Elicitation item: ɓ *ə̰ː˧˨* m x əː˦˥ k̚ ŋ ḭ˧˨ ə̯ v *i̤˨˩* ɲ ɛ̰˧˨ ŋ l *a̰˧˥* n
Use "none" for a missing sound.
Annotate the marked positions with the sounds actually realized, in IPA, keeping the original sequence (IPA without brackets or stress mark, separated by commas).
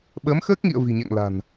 əː˨˦, i̤˨˩, a̤˨˩